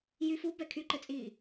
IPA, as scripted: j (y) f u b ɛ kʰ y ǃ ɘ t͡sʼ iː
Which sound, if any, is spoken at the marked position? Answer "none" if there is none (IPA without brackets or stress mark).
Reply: y